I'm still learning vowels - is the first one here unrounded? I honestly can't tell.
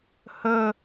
no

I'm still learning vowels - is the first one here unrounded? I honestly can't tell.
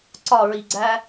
no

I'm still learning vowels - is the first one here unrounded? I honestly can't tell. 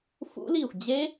no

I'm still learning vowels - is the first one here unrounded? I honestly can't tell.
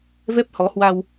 yes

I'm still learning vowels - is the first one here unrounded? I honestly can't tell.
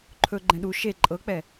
no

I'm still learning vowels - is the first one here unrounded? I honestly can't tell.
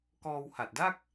no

